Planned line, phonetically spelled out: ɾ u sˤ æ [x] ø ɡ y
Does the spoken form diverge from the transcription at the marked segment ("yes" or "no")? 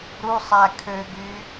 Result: yes